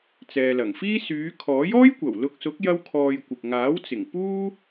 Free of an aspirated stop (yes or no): no